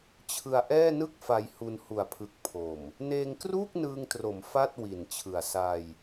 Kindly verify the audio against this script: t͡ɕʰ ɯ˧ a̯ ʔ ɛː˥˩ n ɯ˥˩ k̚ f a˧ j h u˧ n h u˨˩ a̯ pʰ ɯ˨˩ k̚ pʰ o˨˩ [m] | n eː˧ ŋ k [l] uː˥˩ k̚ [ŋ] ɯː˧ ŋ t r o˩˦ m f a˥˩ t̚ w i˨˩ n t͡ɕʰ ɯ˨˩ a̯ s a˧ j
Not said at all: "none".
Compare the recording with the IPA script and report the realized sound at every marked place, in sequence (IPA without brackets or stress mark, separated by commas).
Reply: m, r, n